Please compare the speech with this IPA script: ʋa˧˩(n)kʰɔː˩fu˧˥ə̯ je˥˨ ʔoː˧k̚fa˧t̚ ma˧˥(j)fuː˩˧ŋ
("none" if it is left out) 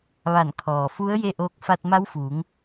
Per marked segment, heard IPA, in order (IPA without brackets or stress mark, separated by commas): n, w